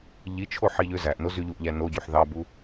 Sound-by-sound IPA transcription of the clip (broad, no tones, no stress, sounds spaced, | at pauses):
ʎ i t͡ʃʰ o ħ i ʎ ø z æ ʔ n o z y ʎ u ʔ ʎ æ n o ɟ y ħ ð ɑ b u